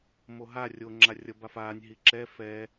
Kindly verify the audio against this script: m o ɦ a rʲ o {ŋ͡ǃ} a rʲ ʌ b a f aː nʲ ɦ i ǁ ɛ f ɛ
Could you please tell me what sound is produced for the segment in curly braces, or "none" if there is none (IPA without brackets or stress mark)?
ŋ͡ǁ